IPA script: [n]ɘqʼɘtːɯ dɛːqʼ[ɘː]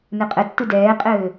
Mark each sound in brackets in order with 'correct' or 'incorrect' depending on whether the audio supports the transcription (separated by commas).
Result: correct, correct